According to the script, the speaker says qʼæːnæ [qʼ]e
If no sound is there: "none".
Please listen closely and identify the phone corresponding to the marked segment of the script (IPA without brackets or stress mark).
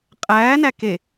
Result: k